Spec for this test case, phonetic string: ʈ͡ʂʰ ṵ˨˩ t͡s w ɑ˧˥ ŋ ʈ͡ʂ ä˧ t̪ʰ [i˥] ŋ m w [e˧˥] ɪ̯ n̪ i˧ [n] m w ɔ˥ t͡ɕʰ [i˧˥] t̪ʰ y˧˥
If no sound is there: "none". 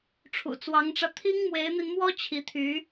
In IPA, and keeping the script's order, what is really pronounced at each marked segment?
i˥, e˧˥, n, i˧˥

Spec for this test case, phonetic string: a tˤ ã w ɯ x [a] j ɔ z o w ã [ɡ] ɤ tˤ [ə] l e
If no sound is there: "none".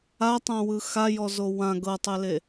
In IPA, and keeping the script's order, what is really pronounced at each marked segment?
a, ɡ, ɛ

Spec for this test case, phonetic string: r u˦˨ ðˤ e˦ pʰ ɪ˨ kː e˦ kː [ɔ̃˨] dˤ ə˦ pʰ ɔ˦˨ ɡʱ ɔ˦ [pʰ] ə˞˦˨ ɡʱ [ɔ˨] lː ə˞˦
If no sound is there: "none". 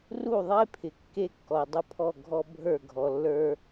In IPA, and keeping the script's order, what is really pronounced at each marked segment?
ɔ˨, bʱ, ɔ˨

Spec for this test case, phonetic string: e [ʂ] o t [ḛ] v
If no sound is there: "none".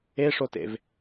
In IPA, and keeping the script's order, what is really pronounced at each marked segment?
ʂ, ḛ

